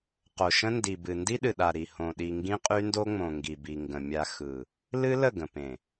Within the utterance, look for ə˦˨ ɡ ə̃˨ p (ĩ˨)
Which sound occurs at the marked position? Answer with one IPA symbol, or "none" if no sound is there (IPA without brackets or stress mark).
ẽ˨